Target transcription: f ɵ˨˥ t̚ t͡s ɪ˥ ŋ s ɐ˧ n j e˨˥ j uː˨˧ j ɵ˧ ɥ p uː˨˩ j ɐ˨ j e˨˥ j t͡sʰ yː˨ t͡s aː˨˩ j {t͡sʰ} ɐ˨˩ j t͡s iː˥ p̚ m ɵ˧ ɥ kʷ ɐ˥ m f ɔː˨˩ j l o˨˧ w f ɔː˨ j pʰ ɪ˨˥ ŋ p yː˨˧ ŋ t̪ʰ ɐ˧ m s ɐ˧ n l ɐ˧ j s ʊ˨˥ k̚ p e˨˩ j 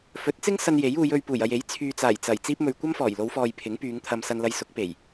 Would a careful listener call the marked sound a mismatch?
yes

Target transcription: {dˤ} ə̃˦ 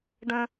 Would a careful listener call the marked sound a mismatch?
yes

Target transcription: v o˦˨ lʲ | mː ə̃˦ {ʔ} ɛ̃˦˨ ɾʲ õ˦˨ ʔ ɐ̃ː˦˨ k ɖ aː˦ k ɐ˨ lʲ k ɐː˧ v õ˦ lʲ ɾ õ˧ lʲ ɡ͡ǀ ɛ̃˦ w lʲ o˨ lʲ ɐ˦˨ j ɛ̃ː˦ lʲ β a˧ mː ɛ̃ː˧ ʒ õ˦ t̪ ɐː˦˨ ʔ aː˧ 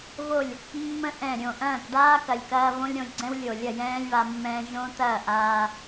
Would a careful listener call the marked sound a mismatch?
no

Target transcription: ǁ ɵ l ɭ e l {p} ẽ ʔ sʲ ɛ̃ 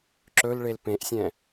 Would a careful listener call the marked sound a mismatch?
no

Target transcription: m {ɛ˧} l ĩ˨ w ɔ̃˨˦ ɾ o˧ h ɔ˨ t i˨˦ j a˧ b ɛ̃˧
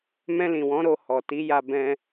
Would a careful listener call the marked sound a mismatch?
yes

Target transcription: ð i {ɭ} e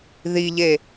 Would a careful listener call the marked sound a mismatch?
yes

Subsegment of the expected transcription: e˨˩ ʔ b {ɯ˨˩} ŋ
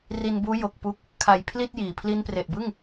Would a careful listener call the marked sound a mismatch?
yes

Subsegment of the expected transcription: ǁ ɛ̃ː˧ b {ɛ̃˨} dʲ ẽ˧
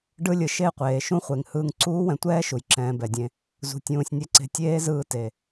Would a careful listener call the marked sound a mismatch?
yes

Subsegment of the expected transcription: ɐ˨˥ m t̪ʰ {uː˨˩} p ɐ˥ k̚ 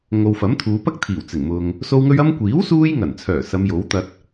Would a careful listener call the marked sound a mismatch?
yes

